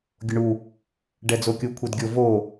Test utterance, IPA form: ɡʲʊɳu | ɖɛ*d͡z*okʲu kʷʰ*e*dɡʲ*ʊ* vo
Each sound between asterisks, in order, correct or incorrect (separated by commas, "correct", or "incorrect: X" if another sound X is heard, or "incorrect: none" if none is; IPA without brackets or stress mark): correct, correct, correct